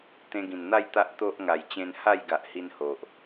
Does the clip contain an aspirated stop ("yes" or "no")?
no